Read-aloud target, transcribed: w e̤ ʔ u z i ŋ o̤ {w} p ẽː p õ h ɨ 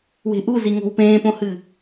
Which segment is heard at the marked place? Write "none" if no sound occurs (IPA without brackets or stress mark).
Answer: w